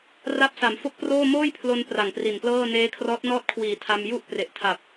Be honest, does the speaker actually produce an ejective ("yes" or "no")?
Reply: no